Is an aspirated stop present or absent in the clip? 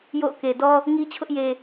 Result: present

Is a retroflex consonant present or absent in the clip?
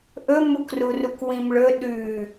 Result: present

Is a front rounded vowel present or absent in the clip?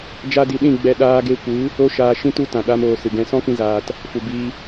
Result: absent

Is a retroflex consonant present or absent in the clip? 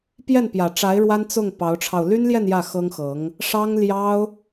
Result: present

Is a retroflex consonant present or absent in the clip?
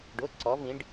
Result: present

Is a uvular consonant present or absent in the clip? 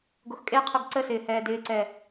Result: present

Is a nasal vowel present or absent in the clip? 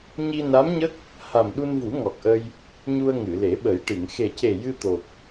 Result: absent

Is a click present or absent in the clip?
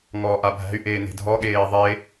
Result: absent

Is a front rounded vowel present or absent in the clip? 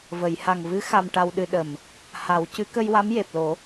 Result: absent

